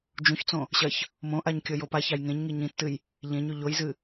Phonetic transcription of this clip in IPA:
d͡ʒ ũ ç t͡s õ | ɕ ɐ ç | m õ ʔ a ɲ kʲ ɵ j o p a ç a j ŋ ẽ ɲ ŋ i ɲ ĩ tː ɨ j | ʎ ẽ ɲ ʉ ʎ o j z ɨ

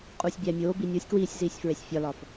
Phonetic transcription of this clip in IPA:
qʼ uː sʲ bʲ æ mʲ oː b i nʲ o sʲ k w iː sʲ z iː sʲ f ɹ e sʲ fʲ ɒ l ɒ f

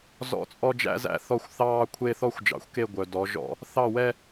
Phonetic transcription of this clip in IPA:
z ɔ̰˦˨ t͡sʼ ɔ˦ d͡ʒ æ̰˦ z æ̰˦ θ ɔ˦˨ xʷ θ ɑː˦ kʷʰ e˦ θ ɔ˦ xʷ d͡ʒ ɑ̰˨ xʷ k e˦˨ ɡʷ œ˨ d ɔ˨˦ ʒ ɔ̰˦ | θ ɑ˦˨ w ɛ˦

